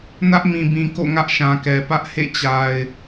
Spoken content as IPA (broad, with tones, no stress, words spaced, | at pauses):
nä˦ʔmĩ˨bĩ˨ ko̰˦˨ŋä˦ʔʃã˨kɛ˨ pä˦ʔhḛ˦˨t͡ɕa˨ɪ̯